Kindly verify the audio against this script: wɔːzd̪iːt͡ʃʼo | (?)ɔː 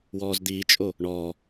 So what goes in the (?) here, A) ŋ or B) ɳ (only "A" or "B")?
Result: B